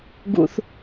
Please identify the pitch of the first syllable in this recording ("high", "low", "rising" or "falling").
high